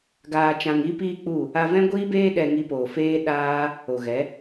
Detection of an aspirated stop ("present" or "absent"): absent